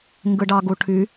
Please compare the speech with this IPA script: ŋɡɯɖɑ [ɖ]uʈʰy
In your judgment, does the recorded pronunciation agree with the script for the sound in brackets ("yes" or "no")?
no